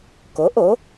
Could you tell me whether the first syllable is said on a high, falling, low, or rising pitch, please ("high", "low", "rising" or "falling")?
rising